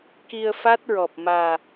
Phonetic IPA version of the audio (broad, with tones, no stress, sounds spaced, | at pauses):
k i˧ ə̯ f a˦˥ t̚ ɹ ɔ˨˩ p̚ m aː˨˩